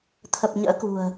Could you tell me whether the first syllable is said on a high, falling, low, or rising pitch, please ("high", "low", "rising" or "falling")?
low